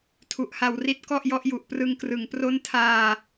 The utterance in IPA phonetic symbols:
tʰu˨˩ʔha˧w ri˦˥t̚kɔ˥˩ʔjɔ˦˥ʔju˨˩ʔ prɯ˧ŋkrɯ˩˦ŋpro˥˩n tʰaː˧

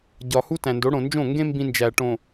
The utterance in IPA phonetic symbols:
ɟɒ˨ hu˦tæ̃˨ndo˨˦ɽõ˨ nd͡ʒõ˦˨ ŋɡẽ˦ mbĩ˦nd͡ʒæ˨ʈõ˨

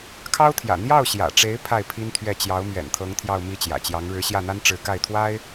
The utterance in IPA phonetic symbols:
kʰɑ˥ʊ̯t̪ʰjä̰˨˩ n̪jɑ˥˩ʊ̯ɕjä̰˨˩ʈ͡ʂe˧˥ɪ̯ pʰa˥˩ɪ̯pʰi˥nt̪ʰɥɛ˥˩ t͡ɕjɑ˧˥ʊ̯mɥɛ̰˨˩nt̪ʰɤ˧˥ŋ t̪ʰjɑ˥˧ʊ̯mi˥˩t͡ɕjä̰˨˩t͡ɕjɑ˧˥ŋ ɻɻ̩˧˥ɕjä˥˩n̪a˥n ʈ͡ʂɻ̩˧˥ka˥˩ɪ̯t̪ʰwa˥ɪ̯

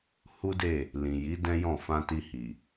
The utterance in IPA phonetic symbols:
hu˦de˦˨ | lĩ˨ji˨˦ dɛ̃˦jɔ̃˦˨ fã˧ti˧hi˨

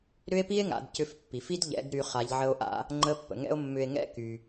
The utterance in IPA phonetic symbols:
ɾʏ˥e̯pi˥e̯ŋa̰˩˧d cʏ˧fpːi˩fi˥d ʎɛ̰˧˥dɾy˧ χa˩˧ʎ ʕə˧o̯ʔa̰˧ | ŋ͡ǃə˧˥pːə̰˩ ŋɛ̰˥o̯mːʏ˧e̯ŋɛ̰˥ ky˩

